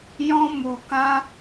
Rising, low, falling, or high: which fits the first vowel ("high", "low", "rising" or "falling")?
high